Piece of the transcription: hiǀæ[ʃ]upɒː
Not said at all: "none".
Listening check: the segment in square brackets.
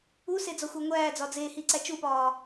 t͡ʃ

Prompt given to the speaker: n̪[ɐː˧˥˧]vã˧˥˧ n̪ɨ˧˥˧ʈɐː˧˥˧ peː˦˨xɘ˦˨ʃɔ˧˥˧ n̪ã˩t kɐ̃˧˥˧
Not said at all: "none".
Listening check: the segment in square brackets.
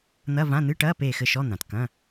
ɐ˧˥˧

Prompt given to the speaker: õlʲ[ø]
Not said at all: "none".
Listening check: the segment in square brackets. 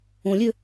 ø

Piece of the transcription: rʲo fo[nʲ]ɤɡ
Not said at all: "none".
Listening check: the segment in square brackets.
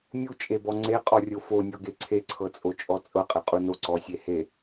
nʲ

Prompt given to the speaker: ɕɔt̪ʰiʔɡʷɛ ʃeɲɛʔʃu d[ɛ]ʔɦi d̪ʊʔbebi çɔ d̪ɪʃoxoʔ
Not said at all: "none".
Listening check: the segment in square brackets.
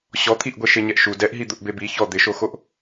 ɛ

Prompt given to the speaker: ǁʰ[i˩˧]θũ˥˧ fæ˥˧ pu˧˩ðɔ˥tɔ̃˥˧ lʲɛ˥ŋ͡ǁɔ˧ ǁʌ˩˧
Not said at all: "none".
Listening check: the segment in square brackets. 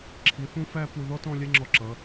i˩˧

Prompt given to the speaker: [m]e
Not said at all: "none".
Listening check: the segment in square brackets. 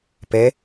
p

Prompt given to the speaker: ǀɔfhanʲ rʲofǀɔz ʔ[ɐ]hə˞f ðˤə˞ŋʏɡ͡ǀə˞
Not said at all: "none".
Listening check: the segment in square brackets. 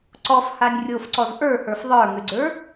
ə˞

